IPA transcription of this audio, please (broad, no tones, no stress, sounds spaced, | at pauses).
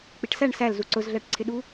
k͡p i ʈ s æ ɳ s æ l z u ǀ ʊ z ɮ æ ʈ ǀʰ ɪ ɗ u